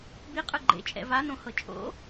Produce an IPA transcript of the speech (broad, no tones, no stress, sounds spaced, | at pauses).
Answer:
b i qʼ ɯ ɡ͡ǃ ḛ t͡ʃʼ ɛ̰ v a n õ h ɤ t͡ʃʼ o̰